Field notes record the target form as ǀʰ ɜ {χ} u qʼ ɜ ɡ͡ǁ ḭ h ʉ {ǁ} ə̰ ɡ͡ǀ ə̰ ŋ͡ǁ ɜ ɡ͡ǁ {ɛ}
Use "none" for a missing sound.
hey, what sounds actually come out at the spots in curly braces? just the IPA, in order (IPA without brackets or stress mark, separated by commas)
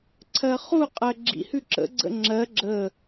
χ, ǁ, ə